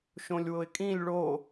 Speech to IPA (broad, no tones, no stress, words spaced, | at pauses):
ʃõlʲwʊɪ̯kʼĩlʲ ɭo